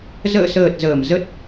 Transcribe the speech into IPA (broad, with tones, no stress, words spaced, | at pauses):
zə̰ː˧˨səː˨˩t̚ zəː˧˩m zə˦˥t̚